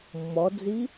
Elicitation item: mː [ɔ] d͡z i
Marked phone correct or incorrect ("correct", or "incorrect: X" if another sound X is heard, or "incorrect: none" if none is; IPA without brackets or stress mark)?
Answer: correct